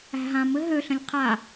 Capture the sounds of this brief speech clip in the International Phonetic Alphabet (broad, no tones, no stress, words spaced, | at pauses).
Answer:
æ̤ɦãmɘ ɦøɬə̃lʲ qʰa